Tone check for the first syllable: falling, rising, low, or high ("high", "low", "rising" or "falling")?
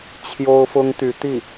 high